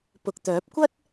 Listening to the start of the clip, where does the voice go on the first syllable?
low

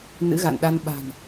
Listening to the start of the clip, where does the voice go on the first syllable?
rising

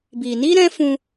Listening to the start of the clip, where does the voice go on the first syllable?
low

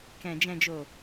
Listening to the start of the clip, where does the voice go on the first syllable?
low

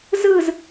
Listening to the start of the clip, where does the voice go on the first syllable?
falling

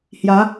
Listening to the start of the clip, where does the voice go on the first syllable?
rising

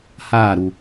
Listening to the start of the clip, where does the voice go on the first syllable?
falling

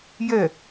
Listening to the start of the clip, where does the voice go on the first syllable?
falling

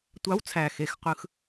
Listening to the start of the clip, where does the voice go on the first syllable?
rising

